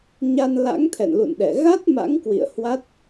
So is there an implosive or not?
yes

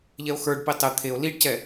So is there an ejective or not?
no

